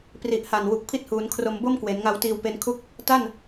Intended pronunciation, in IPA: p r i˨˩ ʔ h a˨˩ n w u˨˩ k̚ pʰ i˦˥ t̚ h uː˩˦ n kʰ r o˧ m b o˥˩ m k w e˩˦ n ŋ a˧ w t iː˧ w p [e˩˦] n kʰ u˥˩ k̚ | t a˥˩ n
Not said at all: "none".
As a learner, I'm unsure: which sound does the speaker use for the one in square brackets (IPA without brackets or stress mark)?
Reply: e˦˥